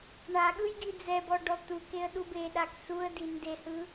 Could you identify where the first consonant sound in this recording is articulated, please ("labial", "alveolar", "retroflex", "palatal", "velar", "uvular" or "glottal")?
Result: retroflex